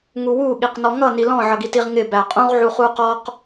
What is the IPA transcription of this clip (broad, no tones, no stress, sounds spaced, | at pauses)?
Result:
ŋ u w u ɠ i q n ɔ ŋ ʌ n i l ɔ̃ ʕ ʌ ɡ i t i ʁ ŋ ɪ b æ qʼ ũ ʁ ʕ u χ u q ɔ q